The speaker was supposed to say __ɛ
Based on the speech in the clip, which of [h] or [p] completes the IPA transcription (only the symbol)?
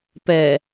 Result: p